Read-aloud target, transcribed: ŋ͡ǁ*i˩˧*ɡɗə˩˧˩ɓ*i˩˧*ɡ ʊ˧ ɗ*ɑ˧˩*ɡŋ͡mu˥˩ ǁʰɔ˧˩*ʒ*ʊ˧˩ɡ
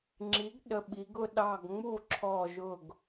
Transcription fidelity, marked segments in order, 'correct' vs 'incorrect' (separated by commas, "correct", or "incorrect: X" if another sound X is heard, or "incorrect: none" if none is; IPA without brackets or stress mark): incorrect: i˩˥, correct, correct, correct